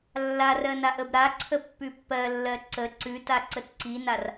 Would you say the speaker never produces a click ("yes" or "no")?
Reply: no